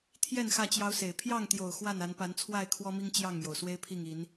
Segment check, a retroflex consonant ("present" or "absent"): absent